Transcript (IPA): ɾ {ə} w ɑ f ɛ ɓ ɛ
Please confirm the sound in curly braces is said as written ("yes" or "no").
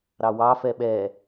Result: no